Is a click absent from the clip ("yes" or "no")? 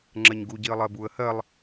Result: no